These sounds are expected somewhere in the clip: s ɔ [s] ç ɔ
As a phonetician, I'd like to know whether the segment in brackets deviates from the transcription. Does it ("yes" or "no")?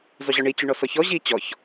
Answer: yes